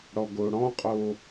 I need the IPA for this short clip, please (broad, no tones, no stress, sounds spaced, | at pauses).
ɽ ɔ ɡ o ɽ ɔ̃ qʼ o